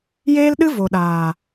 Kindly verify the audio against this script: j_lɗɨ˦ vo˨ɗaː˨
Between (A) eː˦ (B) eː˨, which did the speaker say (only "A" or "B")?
A